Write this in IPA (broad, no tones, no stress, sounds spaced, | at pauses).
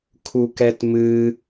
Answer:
kʰ u k ɛ t m ɨ